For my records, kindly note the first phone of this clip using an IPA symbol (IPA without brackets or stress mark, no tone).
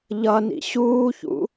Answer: ʎ